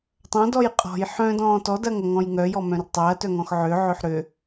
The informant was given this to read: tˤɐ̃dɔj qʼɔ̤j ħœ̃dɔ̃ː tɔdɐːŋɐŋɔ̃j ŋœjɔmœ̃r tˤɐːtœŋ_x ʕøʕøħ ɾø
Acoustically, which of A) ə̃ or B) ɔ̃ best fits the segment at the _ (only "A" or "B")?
B